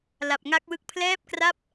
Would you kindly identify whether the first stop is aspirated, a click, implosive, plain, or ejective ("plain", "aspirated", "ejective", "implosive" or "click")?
plain